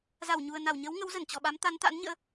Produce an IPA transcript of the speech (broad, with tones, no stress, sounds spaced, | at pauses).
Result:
z a˧˩ w ɲ u˨˩ ə̯ n a˧˩ w ɲ ə˨˦ w ŋ ə˨˦ w z ə˧˩ n t͡ɕ ɔ˨˩ ɓ a˨˦ m t̪ a˨˦ n t̪ a̰˧˥ n ɲ ə̰ː˧˥